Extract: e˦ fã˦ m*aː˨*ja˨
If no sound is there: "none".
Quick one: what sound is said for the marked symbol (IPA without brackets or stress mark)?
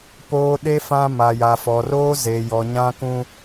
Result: a˨